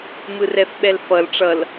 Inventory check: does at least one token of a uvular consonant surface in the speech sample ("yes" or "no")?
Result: no